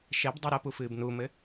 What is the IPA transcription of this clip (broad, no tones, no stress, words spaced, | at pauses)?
ʃɛbdˤe ɾɐpufɨːb numɘ